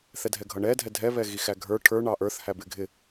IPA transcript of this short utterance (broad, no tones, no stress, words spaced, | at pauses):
θɛdʱɛɡʱʌɳɛ dʱɛdʱɛβɛɣi xæɡʱə˞ ʈʰə˞ ɳɑʔə˞θhæ bɪɡʱɪ